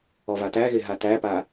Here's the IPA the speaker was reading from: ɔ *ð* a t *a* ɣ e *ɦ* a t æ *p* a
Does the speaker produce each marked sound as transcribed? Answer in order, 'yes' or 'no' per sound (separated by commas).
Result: no, no, yes, yes